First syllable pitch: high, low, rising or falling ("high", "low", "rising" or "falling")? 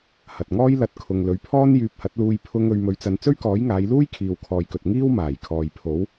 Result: low